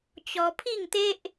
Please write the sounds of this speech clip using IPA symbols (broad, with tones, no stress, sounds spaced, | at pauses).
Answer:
t͡ɕ ɔ˧ pʰ i˥˧ ŋ t̪ e˦ ʔ